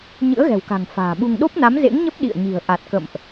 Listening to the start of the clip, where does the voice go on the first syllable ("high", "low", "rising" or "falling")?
rising